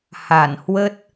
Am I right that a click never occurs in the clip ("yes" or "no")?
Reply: yes